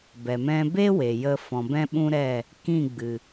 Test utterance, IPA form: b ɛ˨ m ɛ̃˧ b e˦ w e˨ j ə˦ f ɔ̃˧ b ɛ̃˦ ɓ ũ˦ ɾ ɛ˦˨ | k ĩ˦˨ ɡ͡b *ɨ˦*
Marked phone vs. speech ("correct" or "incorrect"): incorrect